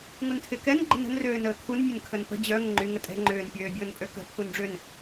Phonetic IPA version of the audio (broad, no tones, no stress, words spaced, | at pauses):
ŋuntʰɪkɛn ɡ͡ǃə̤nə̤n røːnəːkʰun mʲənkʰənpə̤ d͡ʑœ ŋəŋ͡ǃy ŋətʼɛ̤ ŋ͡ǃʏːn pʲøːbʲʊːnpʼøkə̤ pʰunɖ͡ʐʏn